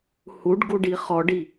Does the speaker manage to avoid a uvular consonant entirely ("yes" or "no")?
no